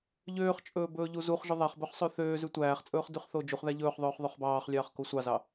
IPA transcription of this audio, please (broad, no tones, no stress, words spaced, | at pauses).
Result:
ʎøːχt͡ʃʼɵː bɵːʎuzuχʒɵ ðˤæχbɵχ sˤøθøːzʉ tʷæːχt͡sʼɵːχ dʉχθod͡ʒuχðæ ʎɵːχðˤɵːχ ðˤøχbɑːχlʲɑːχ kosʷɑzɑ